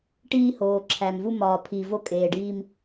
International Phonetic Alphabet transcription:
ʈiː˦hoː˨ǁʰæ˨mvu˦ mɒː˨pʰi˨ vo˦kʼeː˨ɖiː˦m

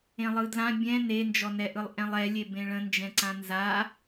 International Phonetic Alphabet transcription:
ẽlˠɯdlã bʲɛ̃ nend͡ʒɔnɛʔɯlˠ ʔɛ̃lˠɛlʲe bẽɭə̃nd͡ʒɛ̃ǀã nza

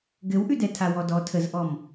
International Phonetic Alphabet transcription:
ɡɘwʔʉdɛtʰa wɔdɔ tʰəzʔɔm

